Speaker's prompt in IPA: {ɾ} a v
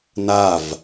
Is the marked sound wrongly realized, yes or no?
yes